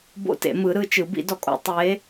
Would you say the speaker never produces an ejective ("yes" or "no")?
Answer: no